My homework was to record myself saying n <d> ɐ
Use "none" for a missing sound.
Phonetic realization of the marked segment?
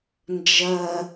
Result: d͡ʒ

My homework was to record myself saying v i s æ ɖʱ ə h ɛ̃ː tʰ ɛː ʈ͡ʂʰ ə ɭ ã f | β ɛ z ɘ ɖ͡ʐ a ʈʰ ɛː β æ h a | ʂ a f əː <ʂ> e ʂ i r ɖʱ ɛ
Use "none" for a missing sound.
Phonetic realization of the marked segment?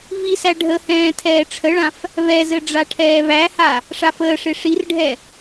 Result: ʂ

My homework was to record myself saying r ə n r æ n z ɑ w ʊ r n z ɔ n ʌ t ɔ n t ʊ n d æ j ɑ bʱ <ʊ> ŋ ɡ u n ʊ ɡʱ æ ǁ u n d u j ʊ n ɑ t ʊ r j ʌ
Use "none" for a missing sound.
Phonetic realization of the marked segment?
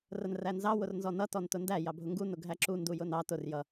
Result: ʊ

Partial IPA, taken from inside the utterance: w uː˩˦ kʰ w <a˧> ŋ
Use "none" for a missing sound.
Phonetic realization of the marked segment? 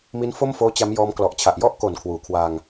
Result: a˧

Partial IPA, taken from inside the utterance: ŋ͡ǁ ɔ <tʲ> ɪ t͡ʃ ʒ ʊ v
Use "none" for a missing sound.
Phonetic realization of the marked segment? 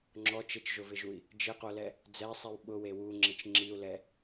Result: t͡ʃ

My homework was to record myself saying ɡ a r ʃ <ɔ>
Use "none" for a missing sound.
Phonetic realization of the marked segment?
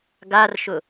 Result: ʊ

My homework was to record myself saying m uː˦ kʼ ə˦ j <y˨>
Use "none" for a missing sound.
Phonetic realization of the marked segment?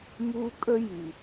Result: y˨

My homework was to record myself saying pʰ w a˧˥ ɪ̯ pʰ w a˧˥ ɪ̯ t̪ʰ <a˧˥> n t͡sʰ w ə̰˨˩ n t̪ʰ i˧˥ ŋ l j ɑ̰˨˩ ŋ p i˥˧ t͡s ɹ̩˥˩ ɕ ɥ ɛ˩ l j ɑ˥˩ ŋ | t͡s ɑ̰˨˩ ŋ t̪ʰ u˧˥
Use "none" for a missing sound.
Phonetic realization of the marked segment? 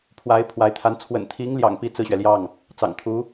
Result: a˧˥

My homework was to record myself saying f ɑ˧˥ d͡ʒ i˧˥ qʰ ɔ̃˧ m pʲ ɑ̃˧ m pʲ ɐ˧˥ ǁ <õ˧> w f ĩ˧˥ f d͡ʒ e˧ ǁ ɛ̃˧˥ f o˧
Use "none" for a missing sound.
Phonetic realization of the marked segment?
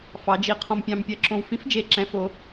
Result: õ˧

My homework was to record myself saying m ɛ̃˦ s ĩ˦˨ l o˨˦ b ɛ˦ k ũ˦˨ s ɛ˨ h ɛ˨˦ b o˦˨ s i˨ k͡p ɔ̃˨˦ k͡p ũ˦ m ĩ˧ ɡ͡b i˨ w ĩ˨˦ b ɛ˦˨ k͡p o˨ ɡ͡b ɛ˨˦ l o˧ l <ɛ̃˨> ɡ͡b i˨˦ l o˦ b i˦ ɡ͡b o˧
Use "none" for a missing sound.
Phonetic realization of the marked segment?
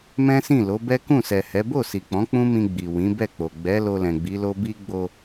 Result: ɛ̃˨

